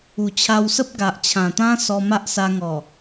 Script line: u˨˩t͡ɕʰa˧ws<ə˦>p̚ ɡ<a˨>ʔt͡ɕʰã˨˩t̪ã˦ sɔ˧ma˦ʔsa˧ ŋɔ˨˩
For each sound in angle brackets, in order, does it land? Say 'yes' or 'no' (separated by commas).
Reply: yes, yes